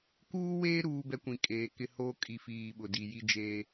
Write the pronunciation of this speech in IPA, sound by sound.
kuː˦weː˦ ɾuː˦bɛ˦kʷĩ˨ kʼeː˨kɪ˦ hoː˦kʼi˨fiː˨ ɓʊ˨di˨ ji˦d͡ʒeː˦

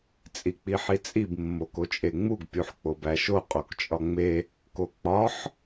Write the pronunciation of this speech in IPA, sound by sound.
t͡sʼik͡piħit͡sʼib mːokot͡ʃʼeŋ͡muɡ pʲuħk͡pobæʃo qʼokt͡ʃʼɒŋ͡me | kok͡pɒħ

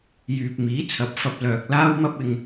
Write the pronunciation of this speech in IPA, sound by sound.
jyː˨p̚miː˨˥t͡sʰɐ˨˥p̚fɐ˧p̚ lœː˨k̚ laː˥wmɐ˥p̚ɪ˧ŋ

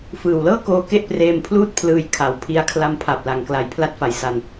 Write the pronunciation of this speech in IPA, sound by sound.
fɯː˨˩wlɤː˥˩koː˧ ke˥˩ʔpreː˧mpʰluː˥˩t̚ pʰlɯː˧jkʰa˩˦wpʰi˧a̯ kʰla˧mpʰa˨˩p̚la˨˩ŋkla˨˩j pʰla˦˥t̚fa˨˩j sa˨˩n

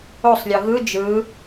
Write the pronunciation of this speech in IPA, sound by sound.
osˤlʲɤ ɣɯ d͡ʒɯ

